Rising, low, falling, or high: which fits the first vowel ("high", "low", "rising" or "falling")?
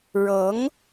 rising